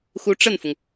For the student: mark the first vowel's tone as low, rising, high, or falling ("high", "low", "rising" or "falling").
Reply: rising